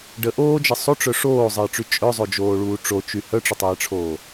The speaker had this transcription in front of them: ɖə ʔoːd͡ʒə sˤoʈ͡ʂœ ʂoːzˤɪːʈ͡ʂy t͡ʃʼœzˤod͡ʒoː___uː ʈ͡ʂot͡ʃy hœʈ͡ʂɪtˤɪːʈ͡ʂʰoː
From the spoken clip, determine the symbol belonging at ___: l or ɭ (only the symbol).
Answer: ɭ